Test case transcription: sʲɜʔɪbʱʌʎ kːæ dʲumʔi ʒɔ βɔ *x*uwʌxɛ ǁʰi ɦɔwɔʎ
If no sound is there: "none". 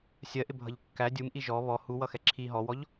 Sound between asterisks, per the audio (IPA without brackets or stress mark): h